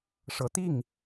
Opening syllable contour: low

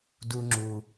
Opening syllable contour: low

